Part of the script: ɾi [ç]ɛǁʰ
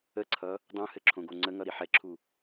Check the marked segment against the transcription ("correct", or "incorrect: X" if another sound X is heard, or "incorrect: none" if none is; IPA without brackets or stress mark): incorrect: ħ